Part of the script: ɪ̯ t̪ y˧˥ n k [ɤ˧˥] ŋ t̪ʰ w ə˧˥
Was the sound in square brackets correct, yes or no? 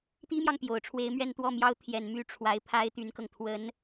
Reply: no